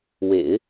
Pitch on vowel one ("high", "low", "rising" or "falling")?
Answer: low